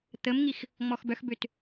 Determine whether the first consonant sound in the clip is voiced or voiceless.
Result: voiceless